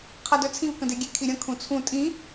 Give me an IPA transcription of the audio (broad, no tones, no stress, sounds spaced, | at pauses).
qʰ a d œ t͡sʰ ĩ v k ə̃ d e ɡʲ e kʰ i ɾʲ ə̃ kʰ ũ t͡sʰ ũ tʼ ĩ